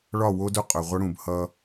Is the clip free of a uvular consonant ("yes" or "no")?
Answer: no